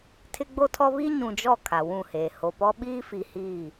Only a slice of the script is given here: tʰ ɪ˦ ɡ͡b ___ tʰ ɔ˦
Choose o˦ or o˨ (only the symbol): o˦